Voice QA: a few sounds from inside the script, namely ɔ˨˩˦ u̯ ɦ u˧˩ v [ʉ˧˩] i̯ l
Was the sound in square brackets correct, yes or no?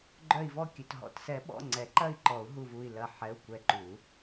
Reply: no